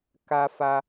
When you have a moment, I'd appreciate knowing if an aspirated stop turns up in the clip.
no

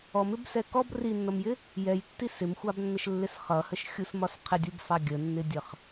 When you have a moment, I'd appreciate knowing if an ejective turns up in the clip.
no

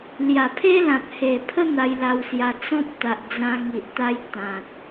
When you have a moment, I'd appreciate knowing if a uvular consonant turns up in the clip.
no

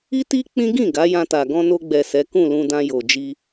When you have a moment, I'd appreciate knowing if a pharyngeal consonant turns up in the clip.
no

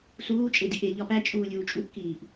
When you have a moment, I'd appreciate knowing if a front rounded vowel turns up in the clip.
no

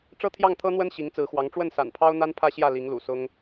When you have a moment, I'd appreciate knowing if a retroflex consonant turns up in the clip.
yes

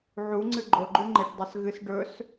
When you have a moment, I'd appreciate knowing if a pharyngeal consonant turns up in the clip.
yes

